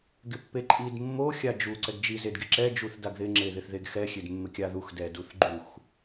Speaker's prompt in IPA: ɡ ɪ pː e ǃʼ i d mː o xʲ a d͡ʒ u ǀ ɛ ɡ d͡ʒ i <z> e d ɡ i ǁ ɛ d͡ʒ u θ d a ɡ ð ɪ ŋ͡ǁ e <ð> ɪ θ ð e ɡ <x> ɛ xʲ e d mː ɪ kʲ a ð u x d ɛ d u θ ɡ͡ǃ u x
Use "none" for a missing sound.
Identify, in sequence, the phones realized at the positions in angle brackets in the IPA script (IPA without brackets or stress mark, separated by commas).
z, ð, x